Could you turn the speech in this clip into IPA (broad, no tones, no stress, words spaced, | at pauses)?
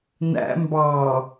næ̰ mbɑ